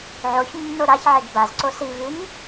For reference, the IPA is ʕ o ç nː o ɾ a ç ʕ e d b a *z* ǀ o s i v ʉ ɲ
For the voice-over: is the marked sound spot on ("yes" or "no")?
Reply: yes